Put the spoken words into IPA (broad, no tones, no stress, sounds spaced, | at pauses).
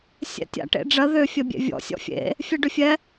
sʲ ɛ̰ tʲ a̰ ʈ ḛ ɖ͡ʐ ɜ ð ʏ fʲ ɜ bʲ ḛ vʲ ɔ̰ sʲ ɔ̰ fʲ ḛ | fʲ ɛ ɖ ʏ fʲ ɛ